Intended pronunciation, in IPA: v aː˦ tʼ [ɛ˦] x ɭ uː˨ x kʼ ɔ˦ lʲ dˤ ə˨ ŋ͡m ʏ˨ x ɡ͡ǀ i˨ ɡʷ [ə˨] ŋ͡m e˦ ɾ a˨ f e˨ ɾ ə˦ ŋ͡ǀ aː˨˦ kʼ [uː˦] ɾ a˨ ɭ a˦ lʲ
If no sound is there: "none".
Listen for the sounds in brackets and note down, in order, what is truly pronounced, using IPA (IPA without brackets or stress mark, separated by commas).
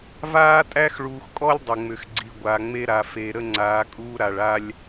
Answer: æ˦, a˨, uː˦